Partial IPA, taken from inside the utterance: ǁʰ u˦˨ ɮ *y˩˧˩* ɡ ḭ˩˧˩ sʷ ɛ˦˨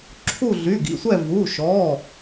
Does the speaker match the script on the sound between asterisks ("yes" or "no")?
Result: yes